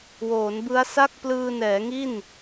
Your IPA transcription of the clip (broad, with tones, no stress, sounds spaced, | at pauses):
w oː˩˦ n b ɯ˦˥ a̯ s a˥˩ k̚ p l ɯː˧ n ɛː˩˦ ŋ i˥˩ n